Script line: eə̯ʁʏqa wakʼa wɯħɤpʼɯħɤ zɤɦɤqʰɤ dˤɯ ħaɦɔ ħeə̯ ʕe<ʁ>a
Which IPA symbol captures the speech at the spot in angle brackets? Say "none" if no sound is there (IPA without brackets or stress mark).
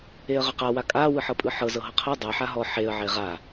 ʁ